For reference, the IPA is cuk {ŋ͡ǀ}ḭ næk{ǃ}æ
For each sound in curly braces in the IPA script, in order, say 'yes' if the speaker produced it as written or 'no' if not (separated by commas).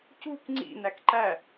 yes, yes